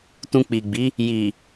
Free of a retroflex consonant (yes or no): yes